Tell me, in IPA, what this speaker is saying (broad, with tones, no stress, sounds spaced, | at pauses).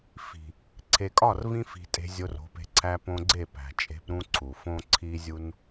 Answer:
f i̤˨ | ǀʰ e˨ kʼ ɒ˦˨ r v ĩ˧ f i̤˨ tʼ e̤˧ zʲ o˧ r o̤˨˦ p e̤˧ ǀʰ æ˧ p õ˧ ɡ͡ǀ e˦˨ p æ̤˨ t͡ʃʼ e̤˧ p ɾ ũ˧ ǀʰ u˨ f õ˦ ǀʰ i˧ zʲ u˧ n